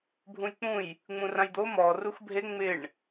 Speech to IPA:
bʱ ũ j k͡p ũ j | ŋ͡m ũ r ã j d̪ o m ɔ r u x bʱ e ŋ͡m ɪ ɳ

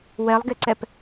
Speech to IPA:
w ɛ lˠ ɡ e ǀ ɛ p

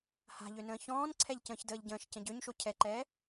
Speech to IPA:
h a̤ ʎ ø n ə̃ː ç ɔ̃ː n ǀʰ ɛ ʎ c ə̃ː ç d əː ʎ ɟ ə̃ː ʃ c ə̃ ɟ ø ɲ ʃ o cʰ ɛ ǃ ɛː

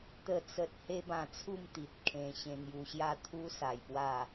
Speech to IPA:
t̪ ə˦ t͡s ə˦ t̚ h e˦ b ã˧ t͡sʰ u˥˧ m t̪ i˨ t̚ kʰ ẽ˧ ɕ ẽ˧ ŋ j u˧ ɕ j a˦ t̪ʰ u˦ s a˧ j p w a˥˧

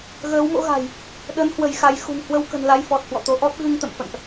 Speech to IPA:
ɣ əː˨˦ w m o̰˧˥ ɣ a̤˨˩ j | ɗ ə˨˦ n h w ə˨˦ j x a˧ j x ṳ˨˩ ŋ h w ə˧ w k ə̤˨˩ n l a˧ j f ɔ˨˩ t̚ h w ɔ̰˧˨ t̪ o˨˦ ʔ ɔ˦˥ t̚ ɣ ɨ˧ ŋ t̪ ə̰˧˨ m f ə̰˧˨ n ʔ

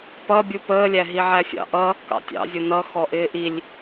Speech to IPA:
p ʌ bʲ u p əː lʲ æ ɦ i ʕ æ fʲ ɑ̰ ʔ ʌ | k ɑ̰ tʲ ɑ̰ zʲ ʊ n ʌ x ɔ ʔ ɪː ʔ i lʲ

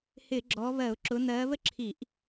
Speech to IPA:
h ɪ˧˩˧ ɡ͡ǁ ɔː˨˦ β ɜ˧˩˧ ʊ̯ ǁ ʊ˨˦ n ɜː˨˦ β ə˥ ǁʰ i˧˩˧ ʔ

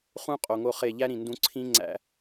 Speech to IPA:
χ ũ˦ qʼ o˨ ŋ o˦˨ χ e˦˨ ʎ æ˦ ɾ ĩ˨ n d ũ˧ ǀʰ ĩ˦ ŋ͡ǀ æ̰˦

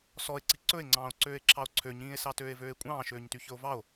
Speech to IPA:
s ɔ e̯ ǀ i ǀ ɵ e̯ ŋ͡ǀ ɑ̃ː o̯ ǀ øː e̯ ǁʰ ɑ o̯ ǀʰ ø ɲ ĩː e̯ s ɑ t øː e̯ v øː e̯ kʷʼ ɑ̃ː ʃ øː ɲ t y ç ɵ o̯ v ɑ o̯

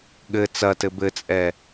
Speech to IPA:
ɠ ɘ t͡s ɐ t ɘ b ɘ t͡sʼ ɛ

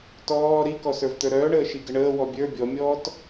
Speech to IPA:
t ɔː ɾ i k ɔ s ə˞ v t̪ ə˞ ɾ œː ɳ əː ʃ i ɡ ə ɳ əː w ɔ bʲ ə˞ bʲ ɔ mʲ ɔː t

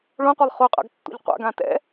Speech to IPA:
ɭ õ qʷ a lˠ χ o qʼ a̰ ɡ tː ṵ ʎ qʷ a̰ ɡ ã t ɛ̰

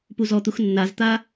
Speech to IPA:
p u z ɔ t̪ u x nː a z t̪ a

